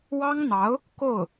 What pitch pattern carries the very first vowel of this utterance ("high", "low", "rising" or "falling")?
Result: high